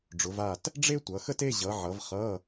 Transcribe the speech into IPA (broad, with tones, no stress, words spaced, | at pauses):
ɖ͡ʐʊ˩˧va˦˨t | ɖ͡ʐe˥tʷʌ˩˧xə˥te˧˥˧ ʑʌ˩˧ʕʌ˩˧v χʌ˧˥˧